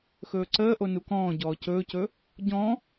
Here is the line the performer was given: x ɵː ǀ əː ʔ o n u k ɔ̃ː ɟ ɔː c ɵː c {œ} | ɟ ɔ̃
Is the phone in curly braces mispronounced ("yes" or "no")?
yes